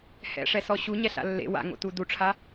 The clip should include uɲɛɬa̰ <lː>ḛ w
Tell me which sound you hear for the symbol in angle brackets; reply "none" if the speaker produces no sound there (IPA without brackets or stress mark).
lː